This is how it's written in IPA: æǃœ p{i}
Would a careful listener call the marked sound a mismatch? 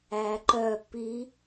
no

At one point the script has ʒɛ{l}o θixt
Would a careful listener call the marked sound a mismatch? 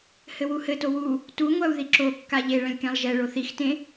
yes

